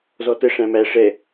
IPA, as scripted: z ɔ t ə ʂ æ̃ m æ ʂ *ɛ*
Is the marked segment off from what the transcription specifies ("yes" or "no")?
no